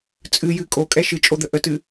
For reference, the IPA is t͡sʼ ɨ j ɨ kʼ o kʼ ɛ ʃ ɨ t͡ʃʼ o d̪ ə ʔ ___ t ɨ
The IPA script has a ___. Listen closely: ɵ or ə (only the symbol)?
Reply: ə